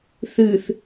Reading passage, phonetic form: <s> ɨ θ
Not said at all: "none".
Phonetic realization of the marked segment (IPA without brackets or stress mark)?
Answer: θ